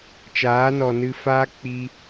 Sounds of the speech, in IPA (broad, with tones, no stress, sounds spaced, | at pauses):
t͡ʃ aː˨˦ n ɔ˨ n ɨ˧ f aː˦ k͡p i˧